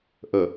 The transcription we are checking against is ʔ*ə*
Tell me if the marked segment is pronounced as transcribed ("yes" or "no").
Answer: yes